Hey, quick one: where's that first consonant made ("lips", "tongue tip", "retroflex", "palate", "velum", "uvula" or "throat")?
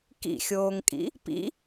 velum